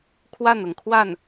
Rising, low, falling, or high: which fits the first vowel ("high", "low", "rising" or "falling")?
falling